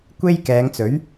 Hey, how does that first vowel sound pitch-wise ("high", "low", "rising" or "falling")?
high